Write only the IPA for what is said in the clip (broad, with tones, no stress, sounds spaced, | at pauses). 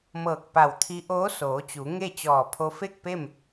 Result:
m ɤː˧˩ k̚ p a˧˩ w t̪ʰ i˧˥ ʔ oː˧˥ s oː˩˧ t͡ɕ u˩˧ ŋ e˥˨ t͡ɕ ɔː˧˩ pʰ o˧˥ f e˥˨ k̚ p e˥˨ m